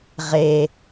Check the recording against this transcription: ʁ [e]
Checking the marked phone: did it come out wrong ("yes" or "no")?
no